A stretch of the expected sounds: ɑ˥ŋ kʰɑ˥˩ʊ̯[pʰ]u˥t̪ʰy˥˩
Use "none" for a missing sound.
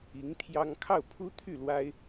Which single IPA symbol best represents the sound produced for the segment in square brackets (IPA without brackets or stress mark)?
pʰ